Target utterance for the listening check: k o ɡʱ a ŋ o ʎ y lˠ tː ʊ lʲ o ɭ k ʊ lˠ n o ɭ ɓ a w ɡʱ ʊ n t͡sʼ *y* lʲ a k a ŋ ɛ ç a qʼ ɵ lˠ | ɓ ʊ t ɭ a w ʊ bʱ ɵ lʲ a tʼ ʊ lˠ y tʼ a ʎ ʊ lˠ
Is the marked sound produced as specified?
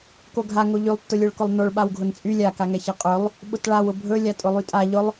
yes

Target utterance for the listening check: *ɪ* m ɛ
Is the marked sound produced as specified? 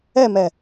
no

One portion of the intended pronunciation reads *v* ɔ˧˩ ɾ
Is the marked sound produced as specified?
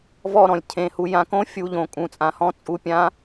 yes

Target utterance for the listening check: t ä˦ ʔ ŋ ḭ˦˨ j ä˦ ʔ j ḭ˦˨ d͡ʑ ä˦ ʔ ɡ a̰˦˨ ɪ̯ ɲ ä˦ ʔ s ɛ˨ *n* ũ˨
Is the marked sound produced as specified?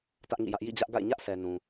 yes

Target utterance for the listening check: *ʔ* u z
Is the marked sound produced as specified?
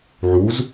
no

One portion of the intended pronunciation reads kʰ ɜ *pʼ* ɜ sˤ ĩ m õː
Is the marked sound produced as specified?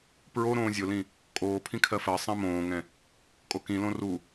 no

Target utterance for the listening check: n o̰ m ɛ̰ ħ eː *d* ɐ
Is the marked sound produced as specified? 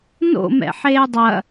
no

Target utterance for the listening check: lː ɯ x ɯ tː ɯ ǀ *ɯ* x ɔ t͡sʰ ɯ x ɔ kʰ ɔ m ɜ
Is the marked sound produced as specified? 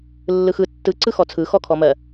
yes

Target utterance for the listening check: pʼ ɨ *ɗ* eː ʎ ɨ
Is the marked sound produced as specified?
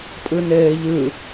no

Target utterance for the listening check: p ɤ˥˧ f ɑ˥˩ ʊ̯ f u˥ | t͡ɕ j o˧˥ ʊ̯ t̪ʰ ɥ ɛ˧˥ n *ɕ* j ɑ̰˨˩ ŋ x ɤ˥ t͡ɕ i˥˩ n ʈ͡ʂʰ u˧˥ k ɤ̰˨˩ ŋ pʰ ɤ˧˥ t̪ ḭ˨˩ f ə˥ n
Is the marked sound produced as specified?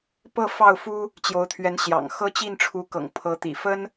yes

